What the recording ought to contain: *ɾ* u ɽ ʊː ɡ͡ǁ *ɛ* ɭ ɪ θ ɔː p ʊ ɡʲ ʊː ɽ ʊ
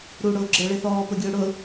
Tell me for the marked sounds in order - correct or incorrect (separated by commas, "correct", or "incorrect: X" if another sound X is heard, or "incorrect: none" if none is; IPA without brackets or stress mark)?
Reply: correct, incorrect: ə